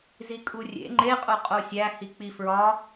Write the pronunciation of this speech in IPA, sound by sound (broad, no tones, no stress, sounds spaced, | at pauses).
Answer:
z i kʼ u rʲ ḛ ŋ͡ǃ e qʼ o qʼ o sʲ æ h i k͡p i f ɹ ɒ